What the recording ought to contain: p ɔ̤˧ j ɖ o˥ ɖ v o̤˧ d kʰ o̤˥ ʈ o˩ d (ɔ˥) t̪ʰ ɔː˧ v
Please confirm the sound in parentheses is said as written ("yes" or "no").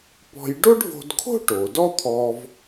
yes